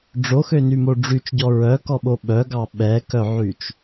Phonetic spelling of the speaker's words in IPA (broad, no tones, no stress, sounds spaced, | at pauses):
ɖ͡ʐ o x ø n y m o ɖ͡ʐ y t͡ʃ ɟ ɔ ɹ œ k ɔ ɓ o ɓ œ ɡ ɑ ɓ ɛ k œ ʕ y t͡ʃ